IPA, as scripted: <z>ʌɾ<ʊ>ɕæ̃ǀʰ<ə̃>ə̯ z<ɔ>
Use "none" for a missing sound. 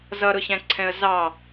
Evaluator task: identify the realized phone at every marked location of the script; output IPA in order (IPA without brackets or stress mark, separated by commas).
z, ʊ, ɛ̃, ɑ